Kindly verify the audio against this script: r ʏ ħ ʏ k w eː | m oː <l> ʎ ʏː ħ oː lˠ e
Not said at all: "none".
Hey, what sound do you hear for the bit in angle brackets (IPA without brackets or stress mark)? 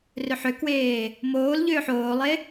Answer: l